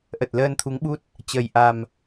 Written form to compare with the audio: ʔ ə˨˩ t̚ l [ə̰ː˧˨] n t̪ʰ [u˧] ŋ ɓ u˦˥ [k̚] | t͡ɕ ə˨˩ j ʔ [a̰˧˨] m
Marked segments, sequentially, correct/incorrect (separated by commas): incorrect, incorrect, incorrect, incorrect